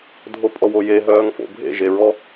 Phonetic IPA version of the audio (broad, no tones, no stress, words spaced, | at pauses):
dʱopʼɔwoje ɦœːŋfo̰bʱḛ ʒeɹɔ